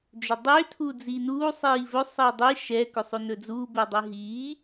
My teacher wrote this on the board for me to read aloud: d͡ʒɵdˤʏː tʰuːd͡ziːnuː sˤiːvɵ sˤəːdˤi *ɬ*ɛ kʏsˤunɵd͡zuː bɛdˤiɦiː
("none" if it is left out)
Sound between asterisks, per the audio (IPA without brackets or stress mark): ʃ